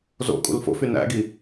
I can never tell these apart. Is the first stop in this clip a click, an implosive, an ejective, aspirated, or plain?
ejective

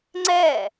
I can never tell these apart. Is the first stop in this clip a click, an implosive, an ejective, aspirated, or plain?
click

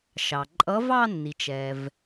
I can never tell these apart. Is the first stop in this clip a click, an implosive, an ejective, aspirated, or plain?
click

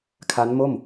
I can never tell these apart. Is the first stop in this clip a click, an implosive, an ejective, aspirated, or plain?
aspirated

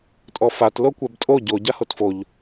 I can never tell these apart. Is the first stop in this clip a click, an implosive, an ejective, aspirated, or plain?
ejective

